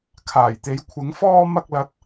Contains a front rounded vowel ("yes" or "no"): no